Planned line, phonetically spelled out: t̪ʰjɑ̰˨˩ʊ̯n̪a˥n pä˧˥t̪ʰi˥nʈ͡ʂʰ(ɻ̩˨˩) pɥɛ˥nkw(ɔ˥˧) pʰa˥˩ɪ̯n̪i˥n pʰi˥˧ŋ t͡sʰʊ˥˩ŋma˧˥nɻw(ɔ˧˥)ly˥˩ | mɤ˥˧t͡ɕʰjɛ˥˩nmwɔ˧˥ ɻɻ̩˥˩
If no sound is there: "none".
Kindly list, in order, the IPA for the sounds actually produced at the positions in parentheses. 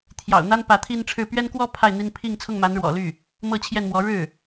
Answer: ɻ̩˥˩, ɔ˥˧, ɔ̰˨˩

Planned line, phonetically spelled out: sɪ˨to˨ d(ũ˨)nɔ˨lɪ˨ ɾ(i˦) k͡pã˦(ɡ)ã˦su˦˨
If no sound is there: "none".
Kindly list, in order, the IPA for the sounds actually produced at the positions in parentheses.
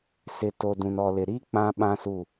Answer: ũ˨, i˦, ɓ

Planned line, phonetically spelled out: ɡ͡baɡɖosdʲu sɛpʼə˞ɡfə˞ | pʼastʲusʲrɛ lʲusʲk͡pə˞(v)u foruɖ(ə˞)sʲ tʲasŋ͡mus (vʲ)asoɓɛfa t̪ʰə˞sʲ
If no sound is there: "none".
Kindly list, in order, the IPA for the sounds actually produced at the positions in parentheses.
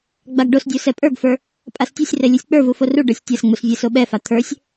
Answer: v, ə˞, vʲ

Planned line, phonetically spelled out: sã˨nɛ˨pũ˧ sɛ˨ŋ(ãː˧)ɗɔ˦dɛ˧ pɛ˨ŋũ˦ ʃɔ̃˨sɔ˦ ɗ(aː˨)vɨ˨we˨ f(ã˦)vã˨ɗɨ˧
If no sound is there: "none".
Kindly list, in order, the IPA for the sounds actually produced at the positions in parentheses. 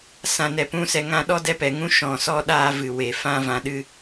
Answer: ã˧, aː˧, ã˧

